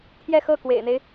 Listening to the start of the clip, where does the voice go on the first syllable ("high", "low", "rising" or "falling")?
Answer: falling